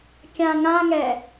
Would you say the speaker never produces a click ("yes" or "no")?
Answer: yes